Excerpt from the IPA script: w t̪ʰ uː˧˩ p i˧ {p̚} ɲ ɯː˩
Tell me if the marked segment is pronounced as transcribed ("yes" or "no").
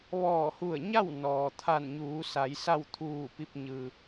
yes